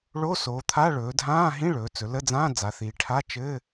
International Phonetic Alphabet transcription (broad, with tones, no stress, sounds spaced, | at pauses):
ɭ o˧˥˧ s oː˩˧ t̪ʰ a˧˥˧ ɭ ɵː˩˧ dʱ ãː˧˥˧ ɦ ĩ˧˥˧ ɭ ɵː˩˧ t͡s ɵ˩˧ l ə˧˥˧ d͡z ãː˧˥˧ d͡z a˩˧ θ iː˩˧ ʈʰ a˧˥˧ t͡ʃ ɘ˧˥˧